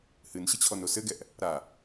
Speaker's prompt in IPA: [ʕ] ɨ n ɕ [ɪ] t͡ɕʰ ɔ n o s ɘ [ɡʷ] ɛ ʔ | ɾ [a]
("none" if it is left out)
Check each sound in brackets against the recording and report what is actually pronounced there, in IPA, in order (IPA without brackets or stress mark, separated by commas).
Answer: h, ɪ, ɡ, a